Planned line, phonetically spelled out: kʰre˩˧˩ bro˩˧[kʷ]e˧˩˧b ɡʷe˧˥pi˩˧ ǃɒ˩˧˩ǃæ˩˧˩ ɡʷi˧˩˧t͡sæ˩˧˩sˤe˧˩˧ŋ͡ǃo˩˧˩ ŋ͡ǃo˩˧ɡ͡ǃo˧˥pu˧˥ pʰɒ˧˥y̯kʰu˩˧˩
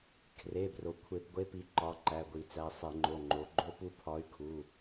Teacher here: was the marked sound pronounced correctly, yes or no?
no